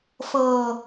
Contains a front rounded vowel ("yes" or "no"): no